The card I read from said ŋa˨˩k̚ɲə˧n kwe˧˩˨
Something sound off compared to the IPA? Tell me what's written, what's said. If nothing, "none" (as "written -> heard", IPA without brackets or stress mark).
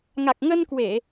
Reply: ɲ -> ŋ